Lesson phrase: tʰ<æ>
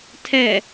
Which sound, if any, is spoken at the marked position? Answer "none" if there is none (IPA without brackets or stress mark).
ɛ